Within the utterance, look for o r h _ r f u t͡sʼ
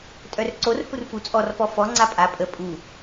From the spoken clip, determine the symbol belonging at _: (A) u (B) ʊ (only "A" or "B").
A